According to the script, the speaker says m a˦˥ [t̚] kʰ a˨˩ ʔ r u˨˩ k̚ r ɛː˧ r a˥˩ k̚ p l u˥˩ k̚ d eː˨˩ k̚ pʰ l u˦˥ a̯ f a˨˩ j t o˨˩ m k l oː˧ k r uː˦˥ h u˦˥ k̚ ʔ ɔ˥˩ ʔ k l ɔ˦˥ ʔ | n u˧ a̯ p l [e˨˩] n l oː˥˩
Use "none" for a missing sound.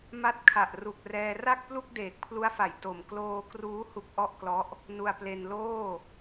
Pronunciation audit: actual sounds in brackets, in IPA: t̚, e˧

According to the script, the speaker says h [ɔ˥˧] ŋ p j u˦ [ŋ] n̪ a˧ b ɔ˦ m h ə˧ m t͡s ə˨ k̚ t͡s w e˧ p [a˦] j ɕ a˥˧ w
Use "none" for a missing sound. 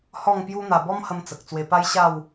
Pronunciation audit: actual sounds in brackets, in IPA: ɔ˥˧, none, a˦

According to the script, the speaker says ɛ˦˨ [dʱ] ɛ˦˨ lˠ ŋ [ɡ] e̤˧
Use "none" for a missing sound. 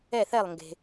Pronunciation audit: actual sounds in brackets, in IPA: θ, ɡ

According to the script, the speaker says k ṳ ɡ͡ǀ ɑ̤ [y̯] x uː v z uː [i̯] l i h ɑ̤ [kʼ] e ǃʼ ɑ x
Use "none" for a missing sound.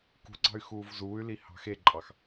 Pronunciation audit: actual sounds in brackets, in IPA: y̯, y̯, x

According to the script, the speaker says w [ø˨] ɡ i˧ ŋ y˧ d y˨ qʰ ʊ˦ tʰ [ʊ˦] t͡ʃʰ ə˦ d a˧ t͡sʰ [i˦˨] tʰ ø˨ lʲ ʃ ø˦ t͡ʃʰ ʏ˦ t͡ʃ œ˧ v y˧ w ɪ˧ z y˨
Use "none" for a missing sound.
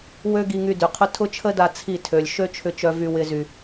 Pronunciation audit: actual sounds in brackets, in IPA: ø˦, ʊ˦, i˦˨

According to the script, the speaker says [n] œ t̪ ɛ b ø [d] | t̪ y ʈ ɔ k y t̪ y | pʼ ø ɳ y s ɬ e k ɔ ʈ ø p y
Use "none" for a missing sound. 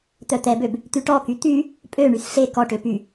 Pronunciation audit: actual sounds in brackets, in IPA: t̪, b

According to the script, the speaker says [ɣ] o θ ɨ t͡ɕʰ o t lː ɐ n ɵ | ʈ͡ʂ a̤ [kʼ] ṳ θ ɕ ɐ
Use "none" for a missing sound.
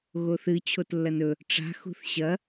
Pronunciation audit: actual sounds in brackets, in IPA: ɣ, x

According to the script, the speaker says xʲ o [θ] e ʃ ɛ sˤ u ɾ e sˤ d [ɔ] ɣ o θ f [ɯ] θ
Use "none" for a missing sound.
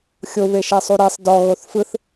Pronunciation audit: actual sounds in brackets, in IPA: β, ɔ, ɯ

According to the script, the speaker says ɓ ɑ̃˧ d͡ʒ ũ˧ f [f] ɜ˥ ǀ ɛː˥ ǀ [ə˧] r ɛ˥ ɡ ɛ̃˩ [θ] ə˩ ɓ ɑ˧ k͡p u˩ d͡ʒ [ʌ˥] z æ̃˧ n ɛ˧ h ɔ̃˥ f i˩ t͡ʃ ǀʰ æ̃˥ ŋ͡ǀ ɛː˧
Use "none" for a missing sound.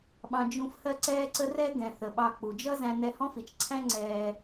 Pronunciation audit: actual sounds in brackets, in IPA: h, ə˥, θ, ʌ˥

